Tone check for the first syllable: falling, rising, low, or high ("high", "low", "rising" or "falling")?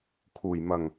low